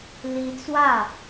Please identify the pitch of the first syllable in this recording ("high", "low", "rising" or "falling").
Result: rising